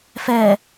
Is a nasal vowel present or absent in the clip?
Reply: absent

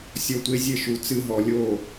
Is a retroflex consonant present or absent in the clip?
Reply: absent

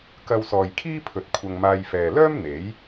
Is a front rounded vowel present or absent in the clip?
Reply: present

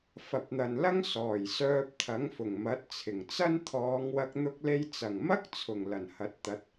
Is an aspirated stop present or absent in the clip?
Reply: present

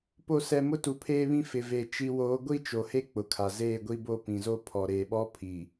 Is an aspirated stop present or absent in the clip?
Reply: present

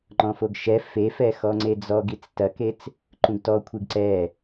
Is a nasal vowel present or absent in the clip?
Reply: present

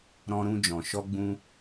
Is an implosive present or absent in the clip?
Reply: absent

